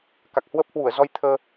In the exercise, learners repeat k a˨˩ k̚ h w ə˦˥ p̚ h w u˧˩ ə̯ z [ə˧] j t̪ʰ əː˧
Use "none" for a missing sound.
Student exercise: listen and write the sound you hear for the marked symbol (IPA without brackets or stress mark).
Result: ɔ˧